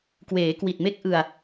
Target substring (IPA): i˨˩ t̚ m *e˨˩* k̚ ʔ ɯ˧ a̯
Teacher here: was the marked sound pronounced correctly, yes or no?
no